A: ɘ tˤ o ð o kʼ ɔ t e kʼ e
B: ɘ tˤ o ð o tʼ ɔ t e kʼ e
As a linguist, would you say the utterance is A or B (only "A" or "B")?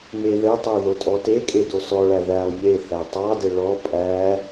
B